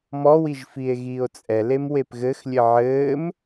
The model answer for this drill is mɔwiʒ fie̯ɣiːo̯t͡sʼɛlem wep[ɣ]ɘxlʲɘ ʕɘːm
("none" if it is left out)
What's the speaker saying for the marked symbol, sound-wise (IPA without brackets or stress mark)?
ɣ